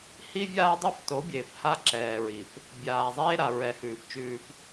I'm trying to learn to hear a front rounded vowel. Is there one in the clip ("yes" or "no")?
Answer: no